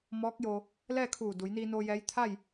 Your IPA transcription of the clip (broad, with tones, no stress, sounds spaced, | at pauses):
m ɔː˧˥ k̚ j o˧ | l ɛː˥˨ kʰ uː˧˩ d u˩˧ j n iː˧ n oː˧ j ɛː˧˥ j t̪ʰ a˥˨ j